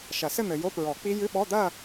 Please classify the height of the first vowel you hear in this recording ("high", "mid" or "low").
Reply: low